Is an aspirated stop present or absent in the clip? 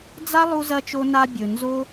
absent